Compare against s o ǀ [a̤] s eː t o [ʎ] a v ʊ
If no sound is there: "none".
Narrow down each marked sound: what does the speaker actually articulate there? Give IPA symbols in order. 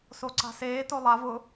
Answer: a̤, lˠ

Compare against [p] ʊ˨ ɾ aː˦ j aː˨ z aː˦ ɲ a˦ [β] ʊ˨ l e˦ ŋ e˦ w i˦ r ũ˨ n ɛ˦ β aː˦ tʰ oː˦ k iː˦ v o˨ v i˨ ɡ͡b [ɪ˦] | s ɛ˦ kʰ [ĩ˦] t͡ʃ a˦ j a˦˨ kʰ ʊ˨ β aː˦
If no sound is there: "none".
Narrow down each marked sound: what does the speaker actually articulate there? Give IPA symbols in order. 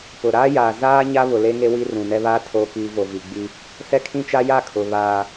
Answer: p, β, i˦, ĩ˦

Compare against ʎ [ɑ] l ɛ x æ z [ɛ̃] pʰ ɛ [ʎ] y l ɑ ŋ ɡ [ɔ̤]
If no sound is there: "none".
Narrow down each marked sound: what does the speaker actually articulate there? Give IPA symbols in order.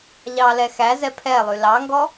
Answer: ɑ, ɛ, lˠ, ɔ

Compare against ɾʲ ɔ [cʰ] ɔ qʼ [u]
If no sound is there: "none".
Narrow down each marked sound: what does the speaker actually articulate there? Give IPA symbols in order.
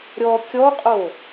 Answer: kʲ, o

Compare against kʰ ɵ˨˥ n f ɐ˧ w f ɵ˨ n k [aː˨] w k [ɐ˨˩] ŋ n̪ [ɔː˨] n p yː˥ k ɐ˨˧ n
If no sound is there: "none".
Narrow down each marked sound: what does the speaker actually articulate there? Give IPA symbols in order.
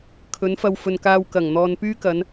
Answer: aː˧, ɐ˨˩, ɔː˨

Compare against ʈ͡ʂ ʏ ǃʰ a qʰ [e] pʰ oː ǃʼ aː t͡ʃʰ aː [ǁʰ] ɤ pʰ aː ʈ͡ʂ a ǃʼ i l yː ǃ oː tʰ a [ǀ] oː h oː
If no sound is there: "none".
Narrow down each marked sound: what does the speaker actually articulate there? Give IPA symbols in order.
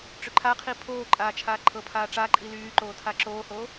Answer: i, ǃʰ, ǁ

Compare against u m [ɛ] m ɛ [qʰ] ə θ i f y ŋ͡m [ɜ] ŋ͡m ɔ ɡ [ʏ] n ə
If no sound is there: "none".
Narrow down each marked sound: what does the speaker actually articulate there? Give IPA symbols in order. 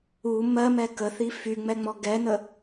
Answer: ɜ, k, ɛ, ɛ

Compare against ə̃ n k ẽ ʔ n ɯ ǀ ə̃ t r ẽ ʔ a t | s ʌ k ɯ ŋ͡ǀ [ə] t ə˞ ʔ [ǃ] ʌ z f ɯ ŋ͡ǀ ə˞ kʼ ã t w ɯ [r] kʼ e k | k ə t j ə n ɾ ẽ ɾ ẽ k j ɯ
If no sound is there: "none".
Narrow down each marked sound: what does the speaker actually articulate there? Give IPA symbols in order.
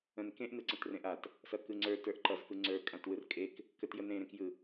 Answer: ə˞, ǃ, r

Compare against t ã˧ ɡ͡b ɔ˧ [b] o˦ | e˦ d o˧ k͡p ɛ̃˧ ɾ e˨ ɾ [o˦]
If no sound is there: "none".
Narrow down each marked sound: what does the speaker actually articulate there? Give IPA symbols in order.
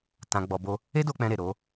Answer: b, o˨˦

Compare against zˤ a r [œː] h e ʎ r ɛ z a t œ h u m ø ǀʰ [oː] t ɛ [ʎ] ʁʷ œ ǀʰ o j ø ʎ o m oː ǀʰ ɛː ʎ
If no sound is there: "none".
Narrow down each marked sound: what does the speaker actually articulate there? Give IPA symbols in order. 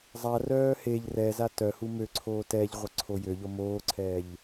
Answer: œː, oː, ʎ

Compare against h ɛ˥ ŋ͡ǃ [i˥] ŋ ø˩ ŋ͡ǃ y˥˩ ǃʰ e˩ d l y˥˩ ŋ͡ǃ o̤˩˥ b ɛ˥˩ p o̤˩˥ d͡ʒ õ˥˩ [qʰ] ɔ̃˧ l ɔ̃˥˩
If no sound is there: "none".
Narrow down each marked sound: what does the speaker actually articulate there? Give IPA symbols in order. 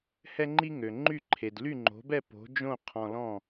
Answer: i˥, qʰ

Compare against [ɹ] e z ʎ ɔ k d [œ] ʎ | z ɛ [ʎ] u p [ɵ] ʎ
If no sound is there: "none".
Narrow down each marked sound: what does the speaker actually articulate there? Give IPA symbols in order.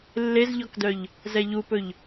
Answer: lː, œ, ʎ, ɵ

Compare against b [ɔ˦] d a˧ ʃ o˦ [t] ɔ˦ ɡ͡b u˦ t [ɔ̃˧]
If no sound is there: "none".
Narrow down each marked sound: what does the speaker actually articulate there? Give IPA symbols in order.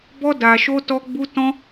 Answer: ɔ˦, t, ɔ̃˦

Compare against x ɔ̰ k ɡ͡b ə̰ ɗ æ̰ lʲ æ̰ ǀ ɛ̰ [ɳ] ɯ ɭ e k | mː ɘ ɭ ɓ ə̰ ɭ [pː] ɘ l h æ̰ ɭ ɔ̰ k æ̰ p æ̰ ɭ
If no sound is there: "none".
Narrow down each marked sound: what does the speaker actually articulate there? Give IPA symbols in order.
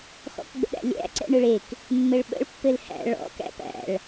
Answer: ɳ, pː

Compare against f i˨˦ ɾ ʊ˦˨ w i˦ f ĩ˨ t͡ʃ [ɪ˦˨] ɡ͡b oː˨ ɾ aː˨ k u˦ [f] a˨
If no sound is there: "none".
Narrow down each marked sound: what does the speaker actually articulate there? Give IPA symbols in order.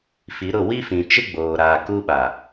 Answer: ɪ˦, ɓ

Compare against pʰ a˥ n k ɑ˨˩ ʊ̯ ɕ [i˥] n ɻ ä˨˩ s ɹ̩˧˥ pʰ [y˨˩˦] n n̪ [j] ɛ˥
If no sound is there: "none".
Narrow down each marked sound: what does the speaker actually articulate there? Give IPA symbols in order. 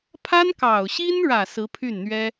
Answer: i˥, y˥˩, ɥ

